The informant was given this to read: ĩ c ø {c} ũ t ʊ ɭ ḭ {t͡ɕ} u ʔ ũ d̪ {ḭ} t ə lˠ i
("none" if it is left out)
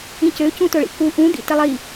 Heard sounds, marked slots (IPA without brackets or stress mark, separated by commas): c, k, ḭ